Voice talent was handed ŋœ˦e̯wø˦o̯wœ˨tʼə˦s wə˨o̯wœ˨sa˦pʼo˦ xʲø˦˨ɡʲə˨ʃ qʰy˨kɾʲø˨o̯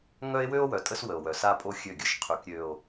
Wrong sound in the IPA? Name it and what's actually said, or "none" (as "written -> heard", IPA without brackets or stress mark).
none